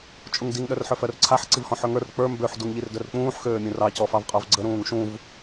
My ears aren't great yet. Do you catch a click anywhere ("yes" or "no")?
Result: yes